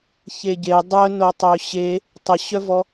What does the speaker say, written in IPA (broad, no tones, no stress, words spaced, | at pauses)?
çeɟe dˤœ notˤøɕe | tˤəɕœvɔ